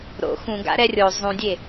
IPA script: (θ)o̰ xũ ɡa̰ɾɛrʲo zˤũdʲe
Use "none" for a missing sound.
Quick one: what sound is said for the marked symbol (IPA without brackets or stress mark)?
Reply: ɾ